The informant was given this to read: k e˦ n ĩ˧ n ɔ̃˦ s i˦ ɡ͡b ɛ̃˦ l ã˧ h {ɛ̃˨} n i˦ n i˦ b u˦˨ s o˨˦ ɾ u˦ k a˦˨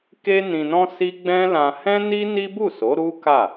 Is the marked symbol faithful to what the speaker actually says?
no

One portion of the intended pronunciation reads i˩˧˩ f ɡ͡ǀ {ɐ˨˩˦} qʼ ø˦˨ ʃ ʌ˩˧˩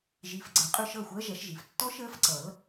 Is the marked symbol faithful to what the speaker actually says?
yes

